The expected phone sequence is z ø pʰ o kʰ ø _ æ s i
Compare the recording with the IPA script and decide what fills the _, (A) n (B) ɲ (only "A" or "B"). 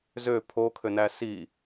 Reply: A